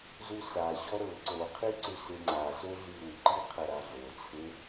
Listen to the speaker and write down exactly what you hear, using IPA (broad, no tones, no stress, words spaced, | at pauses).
zusaɕɔ ɾɤ ǀoqʰiǀu seŋ͡ǀaso ɮiɾuǃi qʰɤɾaɮot͡sʰe